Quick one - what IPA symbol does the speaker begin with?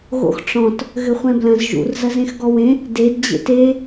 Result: ɣ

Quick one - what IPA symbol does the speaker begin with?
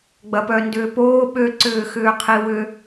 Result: ɡ͡b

